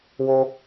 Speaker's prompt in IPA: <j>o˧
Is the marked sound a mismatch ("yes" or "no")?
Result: yes